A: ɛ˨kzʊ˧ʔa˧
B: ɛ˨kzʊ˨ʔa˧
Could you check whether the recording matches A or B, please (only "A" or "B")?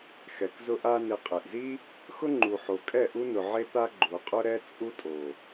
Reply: A